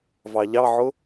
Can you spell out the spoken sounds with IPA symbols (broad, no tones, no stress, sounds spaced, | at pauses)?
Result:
v ɑ ʎ ɑ ʕ ʊ